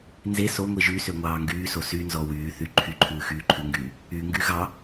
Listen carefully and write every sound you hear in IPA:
n z e s o ŋʷ i ʒ y s ø ŋʷ ɑː ŋ ɡ yː s o s y n z ɔ w yː θ y ǃʰ y ǃʰ ʉː x yː ǃʰ ʉ ŋ ɡ yː | y ŋ ɡ y ɣ ɑ

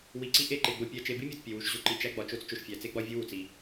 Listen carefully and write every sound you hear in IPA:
w i˨ ǀ i˦ ʔ e˦˨ ǃ e˨ ɡ͡b o˨ pʲ æ˨ t͡ʃ e˨ b i˦ mʲ o˨ t pʲ e˨ w u˨ ʃ ʑ o˦ ǃ i˨ t͡ʃ æ˦ ɡ͡b ɒ˨ t͡ʃ o˦ t͡s t͡ʃ o˨ ʃ fʲ æ˨ t͡s e˦ ɡ͡b ɒ˦ vʲ u˦ w u˨ t͡s i˦

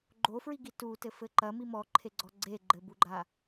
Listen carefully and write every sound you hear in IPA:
ɡ͡ǃ o f ɹ i ɡ i t u t ɘ f ɘ ǃ ɐ m i m ɔ ǃʰ e ɡ͡ǀ ɔ ɡ͡ǀ e ɡ͡ǃ ɘ b u ɡ͡ǃ a

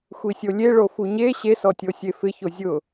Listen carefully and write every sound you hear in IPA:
xʷ i sʲ o lʲ e ɭ o f u ɲ e ɕ e s ɔ tʲ o sʲ e f ɪ ç o zʲ ʊ

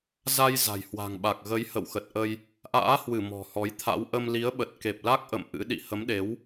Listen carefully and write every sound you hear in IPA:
z a˧ j z a̤˨˩ j h w a̤˨˩ ŋ ɓ a˨˩ k̚ ɣ ə˨˦ j h ə̰˧˨ w x ə˨˩ t̚ ʔ ə˧ j | ʔ a̰ː˧˥ h w ɨ˧˩ m ɔ̤˨˩ h ɔ˨˦ j t̪ʰ a̰˧˥ w ʔ ə˧ m l i˨˦ ə̯ ɓ ə˨˩ t̚ k e˨˩ p̚ l a˦˥ k̚ ʔ ə̰˧˨ m ʔ ɨ̰˧˥ ɗ ḭ˧˨ h ə˨˦ m ɗ e˨˦ w

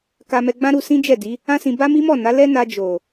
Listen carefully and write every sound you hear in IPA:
k a˧ m ɛ˧ ɡ͡b ã˦ ɾ u˧ s ĩ˦ d͡ʒ ɛ˦˨ d i˨˦ | ã˦ s ĩ˧ b a˦ m i˦ m ɔ˦˨ n a˨˦ l ɛ˦ n a˧ d͡ʒ o˨

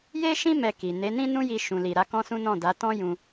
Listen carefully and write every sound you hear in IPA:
j e˦ ʃ ĩ˦ m ɛ˧ k i˨ n e˨˦ n ĩ˦ n ũ˦ j i˧ ʃ ũ˨ l i˨ ɾ a˨˦ k ɔ̃˦ s ũ˦ n ɔ̃˦˨ d a˨˦ t ɔ̃˦ j ũ˧

